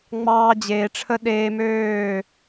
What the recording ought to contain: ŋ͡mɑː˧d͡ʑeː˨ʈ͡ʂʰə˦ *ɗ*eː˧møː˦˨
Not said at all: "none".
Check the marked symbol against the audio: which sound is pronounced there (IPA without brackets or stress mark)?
ɗ